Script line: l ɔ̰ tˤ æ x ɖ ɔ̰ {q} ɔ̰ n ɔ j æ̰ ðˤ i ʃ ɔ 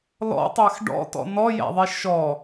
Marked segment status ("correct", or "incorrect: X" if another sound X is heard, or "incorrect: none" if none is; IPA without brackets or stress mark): incorrect: t